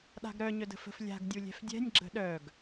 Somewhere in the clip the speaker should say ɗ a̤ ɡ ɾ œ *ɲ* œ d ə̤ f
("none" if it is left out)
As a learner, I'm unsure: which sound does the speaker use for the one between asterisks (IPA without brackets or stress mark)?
ɲ